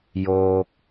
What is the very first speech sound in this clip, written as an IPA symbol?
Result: j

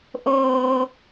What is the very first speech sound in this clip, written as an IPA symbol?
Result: ʔ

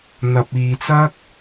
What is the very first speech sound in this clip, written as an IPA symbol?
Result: n̪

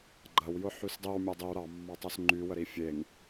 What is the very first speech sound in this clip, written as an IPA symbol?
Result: ɡ͡ǃ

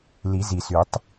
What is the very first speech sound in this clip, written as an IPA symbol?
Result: l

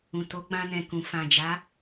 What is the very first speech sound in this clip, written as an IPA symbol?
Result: ũ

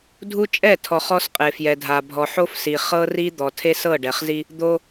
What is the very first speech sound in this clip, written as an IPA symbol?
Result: dʱ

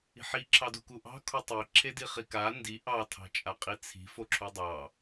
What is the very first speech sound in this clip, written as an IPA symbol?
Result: i̤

